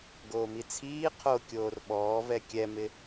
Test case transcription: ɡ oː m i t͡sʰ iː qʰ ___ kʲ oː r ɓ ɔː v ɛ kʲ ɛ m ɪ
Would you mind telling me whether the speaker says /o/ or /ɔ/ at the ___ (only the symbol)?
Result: o